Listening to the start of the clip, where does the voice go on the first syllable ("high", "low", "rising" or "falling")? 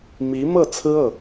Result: rising